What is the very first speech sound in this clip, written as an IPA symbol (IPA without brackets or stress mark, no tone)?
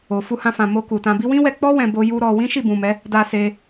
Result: o